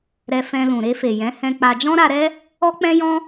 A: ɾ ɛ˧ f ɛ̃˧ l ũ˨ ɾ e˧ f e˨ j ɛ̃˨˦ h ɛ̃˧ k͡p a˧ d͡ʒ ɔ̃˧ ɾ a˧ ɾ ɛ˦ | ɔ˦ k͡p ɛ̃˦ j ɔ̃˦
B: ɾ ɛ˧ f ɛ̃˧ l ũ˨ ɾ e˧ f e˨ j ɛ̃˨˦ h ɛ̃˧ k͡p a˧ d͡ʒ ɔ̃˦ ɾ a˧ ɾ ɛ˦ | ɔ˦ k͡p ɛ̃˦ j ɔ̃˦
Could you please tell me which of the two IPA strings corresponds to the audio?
B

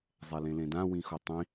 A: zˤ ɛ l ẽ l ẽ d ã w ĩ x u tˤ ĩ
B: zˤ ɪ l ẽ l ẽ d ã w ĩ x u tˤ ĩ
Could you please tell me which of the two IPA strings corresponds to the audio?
A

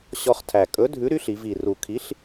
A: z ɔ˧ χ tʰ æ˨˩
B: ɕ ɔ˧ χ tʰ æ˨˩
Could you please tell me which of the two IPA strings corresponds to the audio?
B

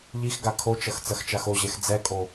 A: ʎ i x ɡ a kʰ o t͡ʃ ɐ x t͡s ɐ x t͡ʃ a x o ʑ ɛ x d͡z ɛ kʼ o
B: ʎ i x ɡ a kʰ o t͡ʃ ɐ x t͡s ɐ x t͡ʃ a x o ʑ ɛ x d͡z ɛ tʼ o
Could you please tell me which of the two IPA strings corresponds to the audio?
A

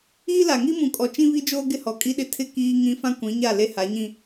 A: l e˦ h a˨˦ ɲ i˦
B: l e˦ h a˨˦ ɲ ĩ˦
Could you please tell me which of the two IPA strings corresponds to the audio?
B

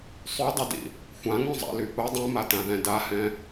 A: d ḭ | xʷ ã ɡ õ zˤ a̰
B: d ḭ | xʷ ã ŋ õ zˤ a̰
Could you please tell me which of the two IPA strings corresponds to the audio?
B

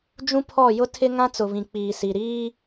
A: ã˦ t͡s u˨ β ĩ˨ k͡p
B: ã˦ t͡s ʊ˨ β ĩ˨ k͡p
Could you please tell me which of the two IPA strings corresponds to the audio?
B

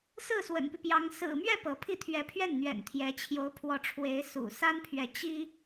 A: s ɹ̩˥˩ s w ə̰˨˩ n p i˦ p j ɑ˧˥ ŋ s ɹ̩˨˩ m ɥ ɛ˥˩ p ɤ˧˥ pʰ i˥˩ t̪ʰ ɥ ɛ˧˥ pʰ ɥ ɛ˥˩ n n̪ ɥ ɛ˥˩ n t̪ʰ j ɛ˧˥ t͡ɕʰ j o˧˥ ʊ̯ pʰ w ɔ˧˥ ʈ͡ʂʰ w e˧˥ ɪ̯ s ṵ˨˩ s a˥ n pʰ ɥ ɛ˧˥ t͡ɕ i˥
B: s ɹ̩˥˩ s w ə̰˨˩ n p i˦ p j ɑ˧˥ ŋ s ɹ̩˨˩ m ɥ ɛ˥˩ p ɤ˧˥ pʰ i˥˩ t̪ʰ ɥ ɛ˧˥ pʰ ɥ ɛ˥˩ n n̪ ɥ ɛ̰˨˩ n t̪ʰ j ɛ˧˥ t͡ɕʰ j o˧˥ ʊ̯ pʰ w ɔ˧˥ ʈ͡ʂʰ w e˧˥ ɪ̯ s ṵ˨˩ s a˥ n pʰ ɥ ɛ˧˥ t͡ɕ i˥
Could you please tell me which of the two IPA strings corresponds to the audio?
B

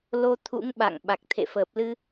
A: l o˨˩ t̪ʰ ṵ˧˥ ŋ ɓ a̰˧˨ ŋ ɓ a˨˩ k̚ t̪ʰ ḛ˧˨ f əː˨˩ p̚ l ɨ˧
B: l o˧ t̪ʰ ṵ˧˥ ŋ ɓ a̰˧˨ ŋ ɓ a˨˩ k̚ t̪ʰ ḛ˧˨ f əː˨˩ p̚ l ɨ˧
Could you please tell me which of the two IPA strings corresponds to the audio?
B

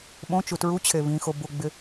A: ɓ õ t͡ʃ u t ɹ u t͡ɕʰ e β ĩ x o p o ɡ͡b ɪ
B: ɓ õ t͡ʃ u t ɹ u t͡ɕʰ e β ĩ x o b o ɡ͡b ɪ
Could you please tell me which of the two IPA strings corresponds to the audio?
B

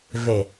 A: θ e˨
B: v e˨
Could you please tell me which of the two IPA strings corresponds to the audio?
B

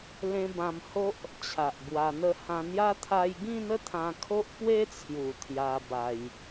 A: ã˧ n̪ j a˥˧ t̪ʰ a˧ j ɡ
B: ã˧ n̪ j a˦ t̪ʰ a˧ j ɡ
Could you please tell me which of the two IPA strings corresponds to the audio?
B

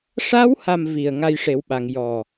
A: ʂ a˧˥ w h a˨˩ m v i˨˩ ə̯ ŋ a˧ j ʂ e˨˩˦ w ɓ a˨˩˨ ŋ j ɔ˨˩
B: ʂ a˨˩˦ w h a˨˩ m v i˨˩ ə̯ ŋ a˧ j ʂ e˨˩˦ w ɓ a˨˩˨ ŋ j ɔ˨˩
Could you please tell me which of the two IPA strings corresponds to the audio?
A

